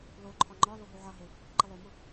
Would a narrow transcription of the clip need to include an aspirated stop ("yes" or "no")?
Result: yes